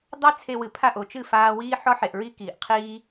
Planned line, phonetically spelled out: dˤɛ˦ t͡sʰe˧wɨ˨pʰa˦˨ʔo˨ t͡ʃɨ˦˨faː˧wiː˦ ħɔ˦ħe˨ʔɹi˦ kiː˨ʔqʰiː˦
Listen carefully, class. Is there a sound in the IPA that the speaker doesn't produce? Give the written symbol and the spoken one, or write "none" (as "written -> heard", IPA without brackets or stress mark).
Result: none